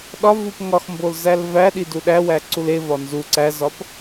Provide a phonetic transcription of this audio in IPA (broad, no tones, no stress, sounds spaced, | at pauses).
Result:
ɗ ɒ v u p ŋ ɒ x m b o l z æ l v æ ɗ i d u ɗ æ w æ ǀ u l e v ɒ n z u ǀ æ z ɒ p